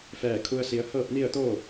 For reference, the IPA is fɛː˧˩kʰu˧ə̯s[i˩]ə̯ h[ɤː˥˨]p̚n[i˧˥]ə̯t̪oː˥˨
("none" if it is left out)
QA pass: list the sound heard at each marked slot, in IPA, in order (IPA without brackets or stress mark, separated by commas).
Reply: i˩˧, ɤː˥˨, i˥˨